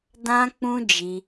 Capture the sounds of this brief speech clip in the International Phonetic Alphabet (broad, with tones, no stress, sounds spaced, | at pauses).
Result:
d ã˦ k͡p ũ˦ d͡ʒ i˧